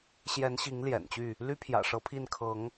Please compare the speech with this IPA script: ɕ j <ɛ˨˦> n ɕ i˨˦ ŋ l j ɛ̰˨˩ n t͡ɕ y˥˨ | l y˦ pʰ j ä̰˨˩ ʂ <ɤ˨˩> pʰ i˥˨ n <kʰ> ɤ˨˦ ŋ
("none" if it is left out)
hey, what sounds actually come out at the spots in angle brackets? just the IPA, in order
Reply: ɛ˨˦, ɤ˨˦, kʰ

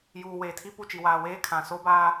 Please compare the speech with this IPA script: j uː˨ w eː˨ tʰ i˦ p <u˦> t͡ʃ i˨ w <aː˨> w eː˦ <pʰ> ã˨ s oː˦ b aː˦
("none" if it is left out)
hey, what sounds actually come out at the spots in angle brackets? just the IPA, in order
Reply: u˦˨, aː˨, kʰ

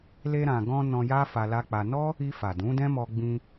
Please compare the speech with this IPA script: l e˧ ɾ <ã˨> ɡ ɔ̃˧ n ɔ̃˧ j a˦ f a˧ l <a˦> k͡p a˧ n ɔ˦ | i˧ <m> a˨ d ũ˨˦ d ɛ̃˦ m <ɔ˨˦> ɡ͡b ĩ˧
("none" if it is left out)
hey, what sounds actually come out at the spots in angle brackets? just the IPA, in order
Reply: ã˨, a˦, f, ɔ˧

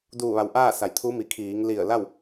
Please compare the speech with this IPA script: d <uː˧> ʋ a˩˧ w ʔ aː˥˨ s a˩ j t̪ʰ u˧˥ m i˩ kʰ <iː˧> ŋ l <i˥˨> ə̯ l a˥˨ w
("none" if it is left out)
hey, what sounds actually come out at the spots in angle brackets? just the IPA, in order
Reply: uː˧˩, iː˩˧, i˧˩

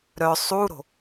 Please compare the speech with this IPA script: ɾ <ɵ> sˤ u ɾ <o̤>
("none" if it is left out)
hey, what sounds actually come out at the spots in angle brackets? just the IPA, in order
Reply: œ, o̤

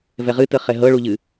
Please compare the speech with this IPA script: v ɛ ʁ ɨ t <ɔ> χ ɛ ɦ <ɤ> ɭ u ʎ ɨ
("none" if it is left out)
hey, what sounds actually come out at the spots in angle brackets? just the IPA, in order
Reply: ə, ɤ

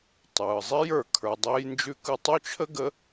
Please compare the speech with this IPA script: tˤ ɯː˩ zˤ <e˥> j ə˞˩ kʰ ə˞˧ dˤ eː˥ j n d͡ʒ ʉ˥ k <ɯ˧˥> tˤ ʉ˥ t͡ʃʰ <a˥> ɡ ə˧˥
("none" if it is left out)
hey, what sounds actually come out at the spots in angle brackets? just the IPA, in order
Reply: e˥, ɯ˥, ə˥

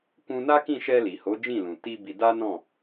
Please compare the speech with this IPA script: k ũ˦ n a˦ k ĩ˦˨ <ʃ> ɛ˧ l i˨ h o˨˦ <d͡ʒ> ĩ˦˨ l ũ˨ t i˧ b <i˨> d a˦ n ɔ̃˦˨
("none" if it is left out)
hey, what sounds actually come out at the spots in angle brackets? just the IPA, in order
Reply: ʃ, d͡ʒ, i˧

